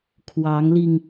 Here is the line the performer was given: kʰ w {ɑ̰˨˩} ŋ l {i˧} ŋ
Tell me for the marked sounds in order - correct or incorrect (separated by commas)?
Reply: incorrect, correct